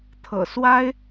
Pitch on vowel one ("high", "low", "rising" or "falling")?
low